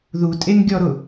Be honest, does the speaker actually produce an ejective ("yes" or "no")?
yes